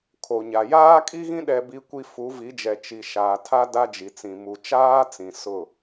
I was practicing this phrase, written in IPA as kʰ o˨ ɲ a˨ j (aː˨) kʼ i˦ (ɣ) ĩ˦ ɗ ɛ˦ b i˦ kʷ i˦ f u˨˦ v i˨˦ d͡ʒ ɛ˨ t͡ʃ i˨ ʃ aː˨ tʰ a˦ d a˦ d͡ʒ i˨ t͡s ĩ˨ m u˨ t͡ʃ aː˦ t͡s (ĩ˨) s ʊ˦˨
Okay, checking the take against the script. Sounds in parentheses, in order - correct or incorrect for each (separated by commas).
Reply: incorrect, correct, correct